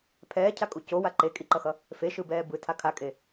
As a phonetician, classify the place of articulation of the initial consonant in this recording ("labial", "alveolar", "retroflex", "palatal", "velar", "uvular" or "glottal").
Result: labial